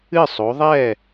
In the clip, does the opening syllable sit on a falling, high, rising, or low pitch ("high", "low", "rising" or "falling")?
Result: falling